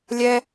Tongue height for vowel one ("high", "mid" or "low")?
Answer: mid